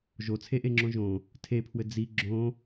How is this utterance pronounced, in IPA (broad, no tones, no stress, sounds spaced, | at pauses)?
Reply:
ʒ o t͡sʰ e ʔ e ŋ͡ǁ õ ʒ õ | tʰ e pʰ w ɘ d͡z i ɡ͡ǁ õ